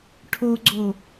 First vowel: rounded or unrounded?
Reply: rounded